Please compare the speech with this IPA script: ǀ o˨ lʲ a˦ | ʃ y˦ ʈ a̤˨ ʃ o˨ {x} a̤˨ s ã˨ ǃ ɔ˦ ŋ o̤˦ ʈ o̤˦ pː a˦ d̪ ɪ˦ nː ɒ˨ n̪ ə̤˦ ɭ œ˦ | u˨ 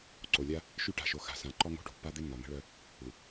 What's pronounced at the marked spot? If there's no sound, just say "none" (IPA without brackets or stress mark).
x